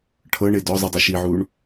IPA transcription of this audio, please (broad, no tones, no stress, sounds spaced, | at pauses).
ʈʰ ɤ ɳ e d ɔ zˤ ɯ dˤ ɤ ʃ i ʕ uː ɳ